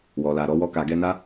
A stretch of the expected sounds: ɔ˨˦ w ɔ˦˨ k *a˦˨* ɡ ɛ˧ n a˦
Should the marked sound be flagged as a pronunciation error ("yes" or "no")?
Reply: yes